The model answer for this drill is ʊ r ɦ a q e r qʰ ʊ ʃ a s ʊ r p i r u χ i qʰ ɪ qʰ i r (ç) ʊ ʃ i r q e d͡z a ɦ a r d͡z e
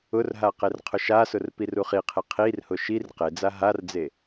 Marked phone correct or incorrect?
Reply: incorrect